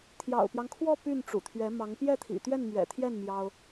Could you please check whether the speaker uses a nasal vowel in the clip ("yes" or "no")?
no